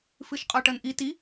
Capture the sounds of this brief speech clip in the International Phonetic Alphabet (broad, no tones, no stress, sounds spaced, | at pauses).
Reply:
f ɨ ʃ qʼ ɔ ʈ ɐ n ʔ i t i